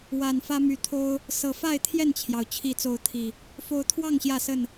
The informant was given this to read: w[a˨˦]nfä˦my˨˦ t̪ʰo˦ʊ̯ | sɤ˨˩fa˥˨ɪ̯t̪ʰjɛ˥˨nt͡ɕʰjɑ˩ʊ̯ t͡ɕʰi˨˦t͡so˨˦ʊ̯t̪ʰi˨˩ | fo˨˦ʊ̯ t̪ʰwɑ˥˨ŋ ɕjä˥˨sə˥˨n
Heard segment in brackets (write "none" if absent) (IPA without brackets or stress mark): a˨˩